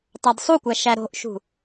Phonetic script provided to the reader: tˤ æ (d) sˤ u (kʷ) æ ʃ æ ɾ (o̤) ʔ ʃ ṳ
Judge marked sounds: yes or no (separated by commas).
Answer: yes, yes, yes